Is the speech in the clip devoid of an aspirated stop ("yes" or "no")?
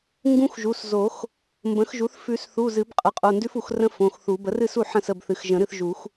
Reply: yes